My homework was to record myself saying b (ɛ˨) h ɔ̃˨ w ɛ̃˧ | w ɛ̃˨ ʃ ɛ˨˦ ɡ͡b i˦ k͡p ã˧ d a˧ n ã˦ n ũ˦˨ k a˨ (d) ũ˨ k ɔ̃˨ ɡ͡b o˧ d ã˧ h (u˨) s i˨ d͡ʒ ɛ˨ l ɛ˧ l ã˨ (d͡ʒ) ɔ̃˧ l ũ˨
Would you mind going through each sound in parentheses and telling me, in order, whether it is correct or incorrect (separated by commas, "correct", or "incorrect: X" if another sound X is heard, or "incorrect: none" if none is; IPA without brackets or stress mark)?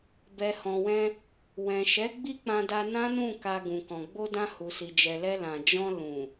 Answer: correct, incorrect: ɡ, correct, correct